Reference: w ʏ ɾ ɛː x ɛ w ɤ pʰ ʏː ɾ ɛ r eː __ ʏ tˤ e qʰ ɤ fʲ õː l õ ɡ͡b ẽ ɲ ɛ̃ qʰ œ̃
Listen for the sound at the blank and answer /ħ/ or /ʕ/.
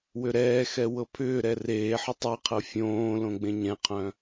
ħ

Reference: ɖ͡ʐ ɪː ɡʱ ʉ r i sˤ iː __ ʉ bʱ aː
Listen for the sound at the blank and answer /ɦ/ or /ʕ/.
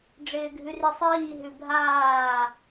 ɦ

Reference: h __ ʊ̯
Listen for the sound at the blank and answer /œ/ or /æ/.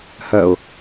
œ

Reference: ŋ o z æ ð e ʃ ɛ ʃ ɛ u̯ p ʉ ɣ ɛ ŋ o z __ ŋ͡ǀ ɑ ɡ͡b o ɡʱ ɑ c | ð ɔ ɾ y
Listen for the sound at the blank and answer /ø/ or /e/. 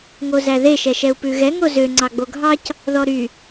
ø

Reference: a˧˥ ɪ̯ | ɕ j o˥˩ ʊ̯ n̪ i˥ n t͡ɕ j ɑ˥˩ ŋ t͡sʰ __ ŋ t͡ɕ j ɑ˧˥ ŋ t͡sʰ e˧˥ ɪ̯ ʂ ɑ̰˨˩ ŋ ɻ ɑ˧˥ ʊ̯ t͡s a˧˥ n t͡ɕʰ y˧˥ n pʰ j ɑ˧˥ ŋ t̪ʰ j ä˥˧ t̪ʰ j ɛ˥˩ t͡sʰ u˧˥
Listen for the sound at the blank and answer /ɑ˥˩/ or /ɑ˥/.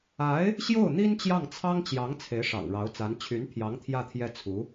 ɑ˥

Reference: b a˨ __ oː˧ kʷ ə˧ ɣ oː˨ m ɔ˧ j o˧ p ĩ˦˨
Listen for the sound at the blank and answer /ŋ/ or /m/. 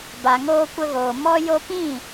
ŋ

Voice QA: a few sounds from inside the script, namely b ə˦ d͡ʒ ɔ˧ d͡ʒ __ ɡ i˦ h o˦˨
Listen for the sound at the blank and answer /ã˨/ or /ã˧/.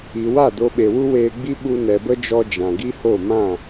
ã˨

